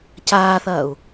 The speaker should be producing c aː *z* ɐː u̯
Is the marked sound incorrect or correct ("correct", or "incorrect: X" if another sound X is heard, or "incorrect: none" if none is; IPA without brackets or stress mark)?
incorrect: θ